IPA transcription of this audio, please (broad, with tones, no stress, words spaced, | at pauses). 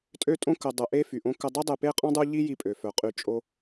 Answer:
tʼø˦tʼõ˦ kə˧ dˤə˧ʔe˦ fy˨ʔõ˧kə˧dˤi˦ dˤe˧pe˦qʼɔ̃˦ dˤu˦ ʎi˦ji˧pʼø˨ fœ˨˦qʼy˧ t͡ʃʼo˦